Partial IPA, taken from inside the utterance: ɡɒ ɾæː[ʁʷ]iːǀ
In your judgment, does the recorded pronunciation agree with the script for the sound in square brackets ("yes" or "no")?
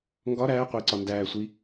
no